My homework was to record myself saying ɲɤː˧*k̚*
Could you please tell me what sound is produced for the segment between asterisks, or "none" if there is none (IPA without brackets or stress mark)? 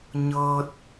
t̚